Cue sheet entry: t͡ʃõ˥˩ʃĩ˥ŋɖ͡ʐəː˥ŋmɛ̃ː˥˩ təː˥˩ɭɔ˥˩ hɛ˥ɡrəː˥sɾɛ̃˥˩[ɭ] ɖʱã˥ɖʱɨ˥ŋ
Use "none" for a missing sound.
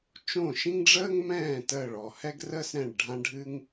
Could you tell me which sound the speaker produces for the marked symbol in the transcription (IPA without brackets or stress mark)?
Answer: ɭ